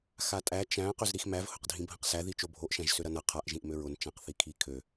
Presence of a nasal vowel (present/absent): present